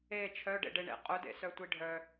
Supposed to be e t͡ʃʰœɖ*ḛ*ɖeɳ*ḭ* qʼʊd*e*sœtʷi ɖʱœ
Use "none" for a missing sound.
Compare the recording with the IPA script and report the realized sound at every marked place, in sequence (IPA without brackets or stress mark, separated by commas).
ḛ, ḛ, ḛ